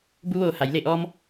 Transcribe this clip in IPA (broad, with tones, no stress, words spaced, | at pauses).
bu˧ʋoː˧˩ha˩˧j le˧˩ʔɔː˧m